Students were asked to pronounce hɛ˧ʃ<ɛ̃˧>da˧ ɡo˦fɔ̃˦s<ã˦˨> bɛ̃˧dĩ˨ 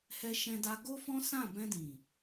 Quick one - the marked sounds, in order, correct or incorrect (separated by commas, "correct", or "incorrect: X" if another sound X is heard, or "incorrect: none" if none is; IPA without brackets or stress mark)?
correct, correct